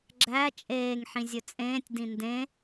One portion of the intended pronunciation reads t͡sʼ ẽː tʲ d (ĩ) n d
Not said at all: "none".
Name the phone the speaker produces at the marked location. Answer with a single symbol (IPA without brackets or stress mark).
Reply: ĩ